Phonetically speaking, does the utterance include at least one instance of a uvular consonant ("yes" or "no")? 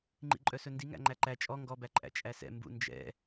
no